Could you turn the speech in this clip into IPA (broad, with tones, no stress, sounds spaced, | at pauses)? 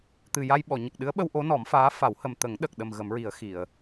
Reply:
t̪ ɨ˨˩ j a˧ j ɓ ɔ˨˩˨ ɲ ə˨˩ k̚ ɗ ɨ˧˥ ə̯ ɓ ə˧ w ʔ o˧˥ n ɔ˨˩˦ m f aː˧˥ f a˨˩˦ w h ə˨˩ m t̪ ə˨˩˦ ŋ ɗ ə˨˩ k̚ ɗ ə˨˩ m ɣ ə˨˩˦ m ɹ i˨˩˦ ə̯ x i˨˩˨ ə̯